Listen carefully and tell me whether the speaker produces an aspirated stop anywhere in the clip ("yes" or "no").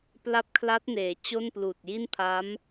yes